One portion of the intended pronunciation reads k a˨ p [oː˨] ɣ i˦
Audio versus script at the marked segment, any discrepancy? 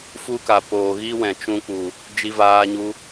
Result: no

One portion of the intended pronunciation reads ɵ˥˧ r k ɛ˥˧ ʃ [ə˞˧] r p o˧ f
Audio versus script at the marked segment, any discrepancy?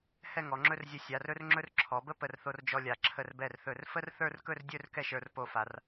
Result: no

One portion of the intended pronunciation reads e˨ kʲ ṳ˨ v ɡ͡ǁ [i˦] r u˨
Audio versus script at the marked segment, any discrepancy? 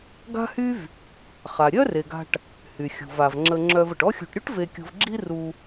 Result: no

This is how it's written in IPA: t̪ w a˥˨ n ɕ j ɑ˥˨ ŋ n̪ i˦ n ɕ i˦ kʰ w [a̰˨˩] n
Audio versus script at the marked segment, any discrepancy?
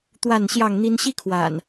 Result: no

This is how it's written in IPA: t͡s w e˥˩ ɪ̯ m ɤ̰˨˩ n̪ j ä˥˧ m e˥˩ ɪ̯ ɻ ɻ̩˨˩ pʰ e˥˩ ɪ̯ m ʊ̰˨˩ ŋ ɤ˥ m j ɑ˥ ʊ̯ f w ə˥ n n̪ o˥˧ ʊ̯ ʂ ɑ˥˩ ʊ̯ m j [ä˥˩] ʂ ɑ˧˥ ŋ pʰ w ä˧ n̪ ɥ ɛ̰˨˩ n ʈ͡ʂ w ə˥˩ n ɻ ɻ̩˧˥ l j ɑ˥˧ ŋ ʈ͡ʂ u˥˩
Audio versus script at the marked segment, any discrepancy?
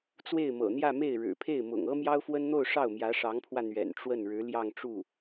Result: yes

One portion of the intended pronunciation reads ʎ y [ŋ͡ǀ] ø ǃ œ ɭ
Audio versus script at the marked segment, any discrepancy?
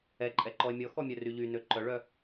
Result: yes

